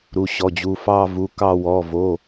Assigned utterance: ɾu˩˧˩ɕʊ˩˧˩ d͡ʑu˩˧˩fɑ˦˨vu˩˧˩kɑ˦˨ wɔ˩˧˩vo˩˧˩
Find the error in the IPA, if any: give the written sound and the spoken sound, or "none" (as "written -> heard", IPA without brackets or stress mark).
ʊ˩˧˩ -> ɔ˩˧˩